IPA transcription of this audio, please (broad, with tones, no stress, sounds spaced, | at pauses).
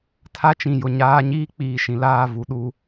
tʰ a˦ t͡ʃ ĩ˨ j ʊ˨ ɲ aː˦ ɲ iː˦ k͡p iː˨ ʃ ĩ˨ l aː˦˨ v u˨ ɗ u˦